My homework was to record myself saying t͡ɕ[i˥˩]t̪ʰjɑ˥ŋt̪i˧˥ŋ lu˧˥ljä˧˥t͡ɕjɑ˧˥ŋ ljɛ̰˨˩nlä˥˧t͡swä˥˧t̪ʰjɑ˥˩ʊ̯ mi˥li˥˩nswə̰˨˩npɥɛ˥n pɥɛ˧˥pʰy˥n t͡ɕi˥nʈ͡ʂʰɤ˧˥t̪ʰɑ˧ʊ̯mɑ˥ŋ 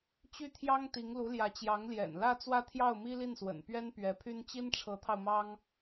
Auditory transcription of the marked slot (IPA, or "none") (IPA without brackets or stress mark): y˥˩